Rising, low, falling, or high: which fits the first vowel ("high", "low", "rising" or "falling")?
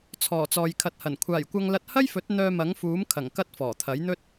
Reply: low